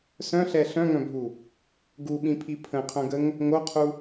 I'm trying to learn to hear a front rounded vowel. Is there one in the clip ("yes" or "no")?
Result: yes